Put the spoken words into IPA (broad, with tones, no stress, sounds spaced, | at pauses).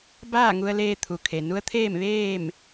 b aː˥˨ ŋ u˧ ə̯ l eː˧ t̪ʰ u˩ kʰ e˩ n u˧˥ ə̯ t̪ʰ eː˥˨ m ʋ eː˥˨ m